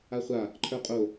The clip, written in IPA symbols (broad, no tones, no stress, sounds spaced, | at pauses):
a χʷ a | ǃʰ ə˞ qʼ o